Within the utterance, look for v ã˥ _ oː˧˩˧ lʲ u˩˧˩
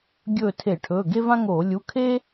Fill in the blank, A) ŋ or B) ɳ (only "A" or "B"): A